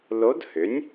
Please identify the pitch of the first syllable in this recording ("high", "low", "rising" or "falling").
rising